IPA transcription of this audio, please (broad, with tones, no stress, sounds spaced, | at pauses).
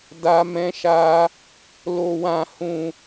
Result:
d a˦ m ɛ̃˦ ʃ a˦ | l o˧ w ã˧ h ũ˧